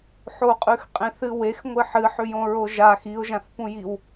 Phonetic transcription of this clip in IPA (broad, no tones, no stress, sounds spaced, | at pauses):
ħ o qʼ ʉ x qʼ ẽ θ ɨ w e x ŋʷ ɨ ħ ɨ ħ ʉ j õ ɹ o ʒ a x i ʊ̯ ʒ ã θ p ũ j i w